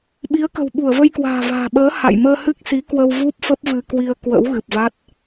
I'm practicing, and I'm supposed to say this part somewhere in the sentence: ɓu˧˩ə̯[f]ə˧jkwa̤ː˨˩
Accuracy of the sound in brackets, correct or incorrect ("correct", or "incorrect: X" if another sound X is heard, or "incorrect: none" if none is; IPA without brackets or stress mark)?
incorrect: v